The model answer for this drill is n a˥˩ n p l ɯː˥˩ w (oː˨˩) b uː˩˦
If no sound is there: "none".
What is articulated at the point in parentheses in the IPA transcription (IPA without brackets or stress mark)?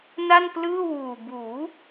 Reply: uː˨˩